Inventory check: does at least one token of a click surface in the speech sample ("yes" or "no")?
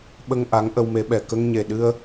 no